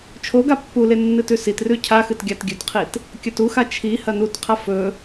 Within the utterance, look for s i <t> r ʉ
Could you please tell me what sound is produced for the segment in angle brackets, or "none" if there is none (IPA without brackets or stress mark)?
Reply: t